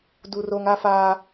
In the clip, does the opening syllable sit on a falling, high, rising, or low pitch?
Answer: low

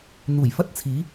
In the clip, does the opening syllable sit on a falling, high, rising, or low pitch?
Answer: low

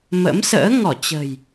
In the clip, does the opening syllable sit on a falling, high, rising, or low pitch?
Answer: rising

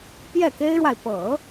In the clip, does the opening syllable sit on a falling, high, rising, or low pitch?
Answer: falling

